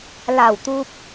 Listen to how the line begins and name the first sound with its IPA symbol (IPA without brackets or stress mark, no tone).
l